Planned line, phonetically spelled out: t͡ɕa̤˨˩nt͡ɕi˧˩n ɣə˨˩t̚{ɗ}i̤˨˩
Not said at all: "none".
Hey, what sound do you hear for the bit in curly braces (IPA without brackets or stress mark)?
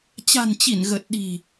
ɗ